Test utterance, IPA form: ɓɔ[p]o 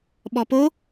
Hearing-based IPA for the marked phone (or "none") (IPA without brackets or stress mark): p